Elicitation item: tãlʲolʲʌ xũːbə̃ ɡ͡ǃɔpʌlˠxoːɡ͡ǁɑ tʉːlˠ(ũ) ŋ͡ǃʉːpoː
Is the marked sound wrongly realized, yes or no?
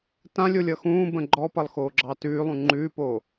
no